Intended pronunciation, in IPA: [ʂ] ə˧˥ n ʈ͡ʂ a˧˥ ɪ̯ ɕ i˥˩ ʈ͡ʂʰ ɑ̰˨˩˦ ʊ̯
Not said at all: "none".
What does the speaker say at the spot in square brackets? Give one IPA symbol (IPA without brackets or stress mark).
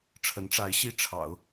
ʈ͡ʂʰ